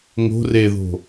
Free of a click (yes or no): yes